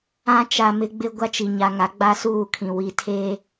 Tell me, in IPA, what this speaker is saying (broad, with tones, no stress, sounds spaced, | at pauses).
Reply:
ã˦ t͡ʃ a˨ m ɪ˦ ɡ͡b ɪ˦ ɡʷ a˦ t͡ʃ i˨ ɲ a˨ ŋ a˨˦ ɡ͡b a˦ s uː˦˨ kʰ ĩ˨ w i˨ tʰ e˦